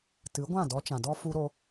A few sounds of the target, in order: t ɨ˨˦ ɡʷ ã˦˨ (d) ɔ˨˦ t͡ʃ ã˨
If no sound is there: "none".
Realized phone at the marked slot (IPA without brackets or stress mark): d